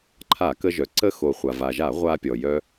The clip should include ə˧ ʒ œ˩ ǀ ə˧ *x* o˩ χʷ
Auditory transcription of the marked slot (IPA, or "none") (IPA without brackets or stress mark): x